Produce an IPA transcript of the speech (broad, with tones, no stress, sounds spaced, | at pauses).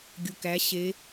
ɡʲ u˨ k æ˨˦ ɕ e˨˦